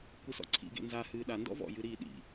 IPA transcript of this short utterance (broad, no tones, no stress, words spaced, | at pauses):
kʷɨsɔ̰ǀʰḭɡḛ nza hɨːɗa ndɔ̰vɔ̰jɨ ɾiːɗḭ